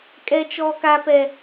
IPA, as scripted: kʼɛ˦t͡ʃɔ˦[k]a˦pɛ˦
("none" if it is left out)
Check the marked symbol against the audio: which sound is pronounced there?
k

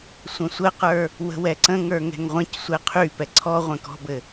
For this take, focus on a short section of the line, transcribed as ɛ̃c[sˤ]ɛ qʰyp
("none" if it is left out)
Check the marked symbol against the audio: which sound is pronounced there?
sʷ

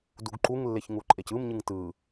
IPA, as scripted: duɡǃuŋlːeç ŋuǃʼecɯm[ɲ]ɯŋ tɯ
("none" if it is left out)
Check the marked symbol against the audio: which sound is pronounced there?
ɲ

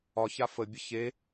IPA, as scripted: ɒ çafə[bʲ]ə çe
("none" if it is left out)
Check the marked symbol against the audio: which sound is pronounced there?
bʲ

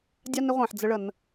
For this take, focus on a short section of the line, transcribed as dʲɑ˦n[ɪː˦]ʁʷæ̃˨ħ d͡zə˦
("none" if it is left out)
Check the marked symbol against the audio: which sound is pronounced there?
ɪ˦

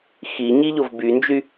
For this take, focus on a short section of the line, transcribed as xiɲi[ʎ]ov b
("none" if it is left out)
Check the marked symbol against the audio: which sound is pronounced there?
ʎ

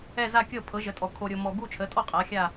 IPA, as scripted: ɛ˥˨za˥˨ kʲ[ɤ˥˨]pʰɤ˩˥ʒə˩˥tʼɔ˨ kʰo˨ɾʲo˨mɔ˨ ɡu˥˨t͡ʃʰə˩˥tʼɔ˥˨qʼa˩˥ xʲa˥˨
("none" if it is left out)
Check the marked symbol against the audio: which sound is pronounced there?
ɤ˥˨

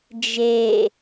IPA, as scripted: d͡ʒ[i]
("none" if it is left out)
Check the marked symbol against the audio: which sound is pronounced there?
e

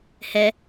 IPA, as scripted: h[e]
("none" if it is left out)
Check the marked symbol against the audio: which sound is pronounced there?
ɛ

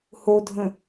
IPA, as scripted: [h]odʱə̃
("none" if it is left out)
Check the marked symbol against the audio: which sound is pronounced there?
h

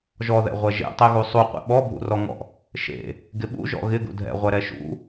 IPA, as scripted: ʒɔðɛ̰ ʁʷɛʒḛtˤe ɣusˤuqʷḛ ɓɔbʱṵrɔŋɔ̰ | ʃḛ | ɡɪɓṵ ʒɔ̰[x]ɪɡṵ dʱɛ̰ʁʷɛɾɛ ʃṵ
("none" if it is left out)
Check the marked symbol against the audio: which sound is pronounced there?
ɣ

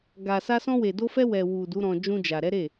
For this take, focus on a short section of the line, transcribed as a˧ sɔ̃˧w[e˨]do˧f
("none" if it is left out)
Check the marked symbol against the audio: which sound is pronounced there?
e˨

